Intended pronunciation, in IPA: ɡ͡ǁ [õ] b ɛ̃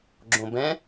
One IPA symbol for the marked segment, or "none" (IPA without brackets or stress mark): õ